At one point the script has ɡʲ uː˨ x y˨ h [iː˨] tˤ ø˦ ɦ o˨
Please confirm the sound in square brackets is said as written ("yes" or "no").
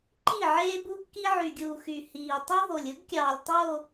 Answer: yes